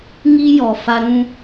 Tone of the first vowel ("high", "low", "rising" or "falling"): high